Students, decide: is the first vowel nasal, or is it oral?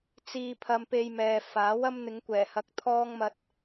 oral